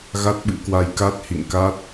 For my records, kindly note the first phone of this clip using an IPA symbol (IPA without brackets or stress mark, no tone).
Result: ɣ